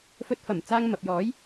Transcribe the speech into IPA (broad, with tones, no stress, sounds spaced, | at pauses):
f ɵ˧ t̚ f ɐ˨˩ m t͡s aː˧ ŋ m ɐ˨ p̚ j ɔː˨˥ j